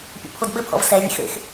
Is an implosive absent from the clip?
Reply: no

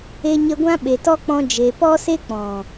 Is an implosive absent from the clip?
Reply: no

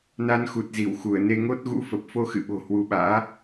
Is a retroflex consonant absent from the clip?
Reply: yes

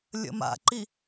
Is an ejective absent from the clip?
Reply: yes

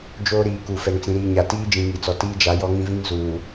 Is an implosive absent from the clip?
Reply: yes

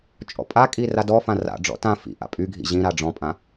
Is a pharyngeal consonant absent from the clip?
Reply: yes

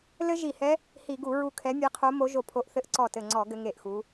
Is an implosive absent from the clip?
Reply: yes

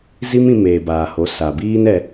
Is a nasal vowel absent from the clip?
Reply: no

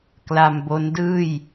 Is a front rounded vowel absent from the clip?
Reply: yes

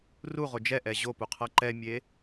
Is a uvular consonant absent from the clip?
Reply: no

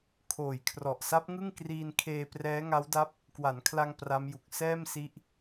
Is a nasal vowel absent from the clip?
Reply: yes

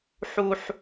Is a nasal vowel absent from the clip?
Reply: yes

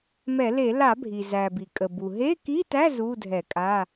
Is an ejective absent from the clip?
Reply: no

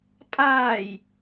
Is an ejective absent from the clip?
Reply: no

